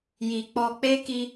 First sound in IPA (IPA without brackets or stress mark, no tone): j